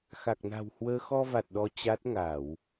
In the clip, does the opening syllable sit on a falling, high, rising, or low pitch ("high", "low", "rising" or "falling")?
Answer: low